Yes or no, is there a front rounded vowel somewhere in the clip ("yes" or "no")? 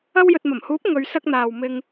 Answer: no